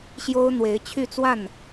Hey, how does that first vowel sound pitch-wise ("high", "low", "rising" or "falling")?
high